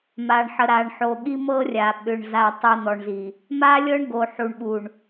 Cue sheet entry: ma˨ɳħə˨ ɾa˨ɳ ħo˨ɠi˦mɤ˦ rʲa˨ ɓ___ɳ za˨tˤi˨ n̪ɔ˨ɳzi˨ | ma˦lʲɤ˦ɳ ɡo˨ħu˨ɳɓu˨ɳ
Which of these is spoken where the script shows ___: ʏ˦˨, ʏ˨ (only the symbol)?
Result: ʏ˨